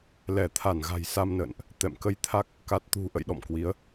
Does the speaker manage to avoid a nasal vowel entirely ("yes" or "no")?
yes